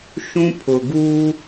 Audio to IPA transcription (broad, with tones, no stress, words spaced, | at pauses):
ʃũ˦pʰʊ˨ɡuː˦